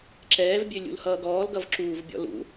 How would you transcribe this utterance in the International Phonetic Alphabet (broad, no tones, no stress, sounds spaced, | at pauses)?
ǁ ɛː v bʲ ø lʲ ṵ l h ʌː ɡ ɔː l ɡ ʌ v ǁ uː v bʲ ɔ̰ l ṵ